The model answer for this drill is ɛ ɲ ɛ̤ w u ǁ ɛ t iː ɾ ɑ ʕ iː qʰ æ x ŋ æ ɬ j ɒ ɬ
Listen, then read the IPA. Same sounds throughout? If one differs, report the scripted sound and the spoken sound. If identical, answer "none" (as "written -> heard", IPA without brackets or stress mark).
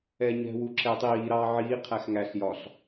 t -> tˤ